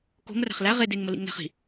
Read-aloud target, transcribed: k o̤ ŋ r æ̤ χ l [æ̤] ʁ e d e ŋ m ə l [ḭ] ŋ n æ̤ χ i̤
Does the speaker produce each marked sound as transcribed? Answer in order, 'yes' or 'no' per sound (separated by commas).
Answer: no, yes